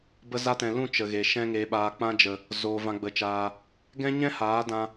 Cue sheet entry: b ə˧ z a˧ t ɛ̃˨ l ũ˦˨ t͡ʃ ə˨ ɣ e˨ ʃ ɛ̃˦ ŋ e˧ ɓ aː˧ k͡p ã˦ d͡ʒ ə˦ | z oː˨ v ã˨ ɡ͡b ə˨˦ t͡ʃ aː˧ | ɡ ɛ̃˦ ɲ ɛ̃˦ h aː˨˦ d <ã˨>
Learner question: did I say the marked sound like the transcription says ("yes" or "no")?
no